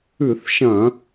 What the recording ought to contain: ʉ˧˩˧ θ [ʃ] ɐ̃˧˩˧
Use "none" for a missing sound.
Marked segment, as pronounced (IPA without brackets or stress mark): ʃ